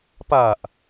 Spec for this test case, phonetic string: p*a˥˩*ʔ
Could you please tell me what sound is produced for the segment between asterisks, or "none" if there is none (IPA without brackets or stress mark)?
a˨˩